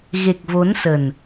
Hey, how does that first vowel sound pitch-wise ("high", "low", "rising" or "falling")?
low